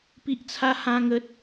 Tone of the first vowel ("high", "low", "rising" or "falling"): high